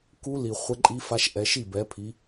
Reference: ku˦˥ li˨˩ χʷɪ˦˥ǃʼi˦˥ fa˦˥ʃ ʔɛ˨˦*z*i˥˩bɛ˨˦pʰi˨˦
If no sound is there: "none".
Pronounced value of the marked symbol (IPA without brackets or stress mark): ʃ